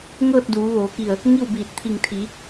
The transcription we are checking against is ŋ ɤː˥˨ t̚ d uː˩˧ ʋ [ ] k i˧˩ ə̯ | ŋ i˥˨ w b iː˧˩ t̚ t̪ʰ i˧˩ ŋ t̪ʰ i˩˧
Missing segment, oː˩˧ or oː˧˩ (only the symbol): oː˩˧